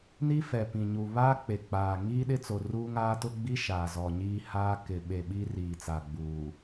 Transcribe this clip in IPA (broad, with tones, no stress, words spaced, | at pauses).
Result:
ni˦fɛ˨pĩ˨ɲu˨ βaː˦k͡pe˨ k͡paː˨ ŋiː˦ɗɪ˦t͡so˨ ruː˦ŋaː˦tʊ˦ ɡ͡bi˦ ʃaː˨zɔ˨ ɲiː˦haː˦ kɪ˨ɓe˨ ɓi˦riː˨t͡sa˨ɡ͡buː˨